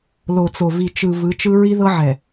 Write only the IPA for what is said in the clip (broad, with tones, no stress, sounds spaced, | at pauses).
l o˨ t͡s o˨ v i˨ t͡ʃ ɯ˨ v ɯ˨˦ t͡ʃ ɯ˦ ɹ i˦ ð ɤ˦ ʕ ɛ˨